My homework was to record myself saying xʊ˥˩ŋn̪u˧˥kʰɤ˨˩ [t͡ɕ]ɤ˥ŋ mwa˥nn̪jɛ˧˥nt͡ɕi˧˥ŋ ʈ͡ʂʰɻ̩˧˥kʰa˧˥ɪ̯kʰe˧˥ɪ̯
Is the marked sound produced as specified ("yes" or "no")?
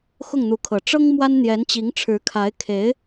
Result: no